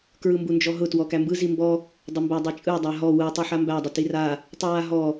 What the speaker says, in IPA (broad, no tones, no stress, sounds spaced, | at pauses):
k ɹ ɯ m b u n d͡ʒ ɔ ɦ ʊ t w ɔ k æ m b ɯ z i m b ɔ | dˤ ʊ m b æ dˤ i t͡ʃʼ ɯ dˤ a ɦ ɔ w ɯ tˤ u ħ a m b æ dˤ ʊ t i r a | tˤ ɨ w a ɦ ɔ